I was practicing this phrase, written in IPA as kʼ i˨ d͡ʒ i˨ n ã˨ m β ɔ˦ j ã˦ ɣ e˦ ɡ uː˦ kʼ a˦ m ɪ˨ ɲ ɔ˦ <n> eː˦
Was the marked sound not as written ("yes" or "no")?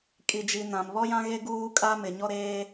yes